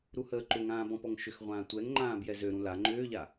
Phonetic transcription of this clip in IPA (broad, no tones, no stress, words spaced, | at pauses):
ɾuhəːǃʏŋãː bɔ̃pɔŋʃʏxʁʷãː tʷɛŋ ŋ͡ǃãːbjɛzøɾũ la ŋ͡ǃʏːʎa